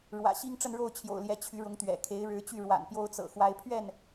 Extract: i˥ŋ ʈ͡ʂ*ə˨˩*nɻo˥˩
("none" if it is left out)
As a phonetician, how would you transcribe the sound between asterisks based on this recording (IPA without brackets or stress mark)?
ə˥˧